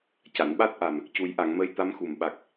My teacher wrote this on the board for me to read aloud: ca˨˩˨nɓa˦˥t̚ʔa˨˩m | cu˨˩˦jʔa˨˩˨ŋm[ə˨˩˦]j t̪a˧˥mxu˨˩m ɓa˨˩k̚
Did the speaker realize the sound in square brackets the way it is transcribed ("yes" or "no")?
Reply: no